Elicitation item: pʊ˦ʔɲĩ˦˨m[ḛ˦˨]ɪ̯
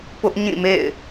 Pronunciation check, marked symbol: correct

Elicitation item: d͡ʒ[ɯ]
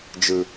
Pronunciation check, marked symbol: correct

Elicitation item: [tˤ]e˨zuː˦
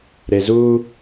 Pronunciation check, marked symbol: incorrect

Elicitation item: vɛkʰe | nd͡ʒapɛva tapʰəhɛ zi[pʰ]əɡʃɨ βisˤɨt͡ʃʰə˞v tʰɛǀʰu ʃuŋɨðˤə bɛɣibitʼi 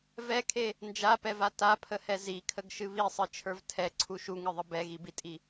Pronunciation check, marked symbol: incorrect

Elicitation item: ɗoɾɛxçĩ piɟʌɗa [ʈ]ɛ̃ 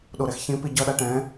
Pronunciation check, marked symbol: correct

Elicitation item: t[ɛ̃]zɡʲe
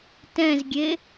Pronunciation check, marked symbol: correct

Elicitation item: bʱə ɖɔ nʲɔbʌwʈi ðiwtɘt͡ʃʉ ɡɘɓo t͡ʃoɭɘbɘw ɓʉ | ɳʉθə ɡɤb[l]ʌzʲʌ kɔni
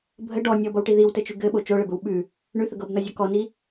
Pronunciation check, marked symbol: incorrect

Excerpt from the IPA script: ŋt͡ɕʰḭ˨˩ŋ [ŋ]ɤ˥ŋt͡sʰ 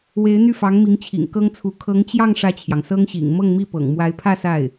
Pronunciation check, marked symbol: incorrect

